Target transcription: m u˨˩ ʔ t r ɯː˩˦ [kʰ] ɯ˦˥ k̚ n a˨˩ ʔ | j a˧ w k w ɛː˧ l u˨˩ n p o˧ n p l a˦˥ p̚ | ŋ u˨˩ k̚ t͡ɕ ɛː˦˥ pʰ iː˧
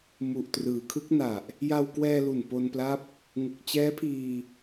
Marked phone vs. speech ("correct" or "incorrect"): correct